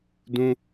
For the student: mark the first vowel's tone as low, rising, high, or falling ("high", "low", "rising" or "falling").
high